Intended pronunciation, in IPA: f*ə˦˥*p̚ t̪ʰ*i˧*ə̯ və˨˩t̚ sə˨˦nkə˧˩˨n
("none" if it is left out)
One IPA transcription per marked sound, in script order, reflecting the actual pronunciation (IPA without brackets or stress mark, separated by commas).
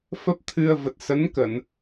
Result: ə˦˥, ɨ˧